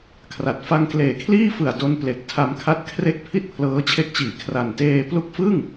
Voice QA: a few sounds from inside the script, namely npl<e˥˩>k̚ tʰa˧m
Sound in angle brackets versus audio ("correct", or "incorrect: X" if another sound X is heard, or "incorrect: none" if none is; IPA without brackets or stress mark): incorrect: e˨˩